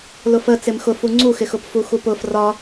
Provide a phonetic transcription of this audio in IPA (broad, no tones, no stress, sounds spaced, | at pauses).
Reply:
l ʊ f ə t͡s ɪ m x ʊ f u ŋ͡ǀ u x ɪ x ʊ p f u x u p ʊ f r ɒ